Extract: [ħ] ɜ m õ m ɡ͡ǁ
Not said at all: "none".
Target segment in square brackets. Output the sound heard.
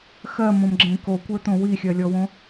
x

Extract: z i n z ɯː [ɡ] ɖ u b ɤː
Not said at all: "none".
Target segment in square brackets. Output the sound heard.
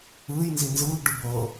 ɡ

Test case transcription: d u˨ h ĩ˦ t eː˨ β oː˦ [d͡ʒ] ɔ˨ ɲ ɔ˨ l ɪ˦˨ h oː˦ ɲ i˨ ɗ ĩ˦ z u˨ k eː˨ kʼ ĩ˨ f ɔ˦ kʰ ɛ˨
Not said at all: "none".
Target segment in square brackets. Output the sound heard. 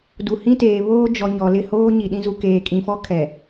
d͡ʒ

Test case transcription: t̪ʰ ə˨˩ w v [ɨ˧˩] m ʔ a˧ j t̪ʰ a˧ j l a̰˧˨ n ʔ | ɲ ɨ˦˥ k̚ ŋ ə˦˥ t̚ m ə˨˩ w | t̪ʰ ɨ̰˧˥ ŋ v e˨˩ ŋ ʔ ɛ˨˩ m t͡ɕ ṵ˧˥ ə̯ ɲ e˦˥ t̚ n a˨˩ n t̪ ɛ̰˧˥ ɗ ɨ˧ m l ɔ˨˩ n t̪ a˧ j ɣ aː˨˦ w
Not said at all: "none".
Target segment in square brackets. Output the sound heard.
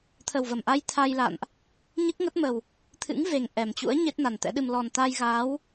ə˧˩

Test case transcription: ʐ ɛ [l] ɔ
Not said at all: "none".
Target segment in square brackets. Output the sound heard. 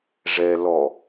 l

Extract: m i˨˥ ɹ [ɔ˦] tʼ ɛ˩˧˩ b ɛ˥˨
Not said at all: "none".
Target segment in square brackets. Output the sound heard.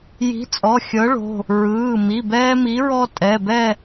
ɔ˦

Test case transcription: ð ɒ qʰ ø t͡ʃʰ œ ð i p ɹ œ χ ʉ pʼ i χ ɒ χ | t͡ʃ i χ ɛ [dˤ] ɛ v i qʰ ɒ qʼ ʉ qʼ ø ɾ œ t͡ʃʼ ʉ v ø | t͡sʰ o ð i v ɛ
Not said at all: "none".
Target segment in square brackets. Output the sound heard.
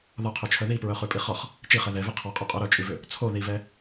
ð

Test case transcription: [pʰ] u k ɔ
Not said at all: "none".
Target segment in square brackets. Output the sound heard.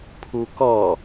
pʰ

